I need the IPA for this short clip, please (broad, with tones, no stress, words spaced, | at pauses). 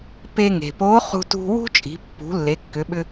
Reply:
pe˧ ŋe̤˩po˧˥χṳ˧tṳ˧ wṳ˥t͡ʃʼi̤˩˧ pːṳ˩˧ lːe˩˧kːʏ˩˧ɓʏ˧